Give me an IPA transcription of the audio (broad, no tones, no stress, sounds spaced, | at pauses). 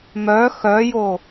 m œ x œ j o